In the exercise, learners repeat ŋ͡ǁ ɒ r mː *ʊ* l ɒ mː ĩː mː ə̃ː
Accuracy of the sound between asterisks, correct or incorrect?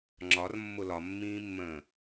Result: correct